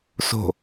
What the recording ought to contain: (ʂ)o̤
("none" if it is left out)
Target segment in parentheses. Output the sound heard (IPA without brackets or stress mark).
s